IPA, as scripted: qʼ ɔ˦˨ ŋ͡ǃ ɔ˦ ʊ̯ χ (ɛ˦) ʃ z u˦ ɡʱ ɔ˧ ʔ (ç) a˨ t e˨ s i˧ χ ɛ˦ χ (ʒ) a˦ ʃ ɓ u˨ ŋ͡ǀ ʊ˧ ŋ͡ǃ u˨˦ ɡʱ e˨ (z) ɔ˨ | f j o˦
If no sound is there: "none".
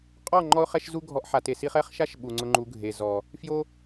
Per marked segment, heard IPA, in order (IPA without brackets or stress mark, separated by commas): ɛ˦, ħ, ʃ, z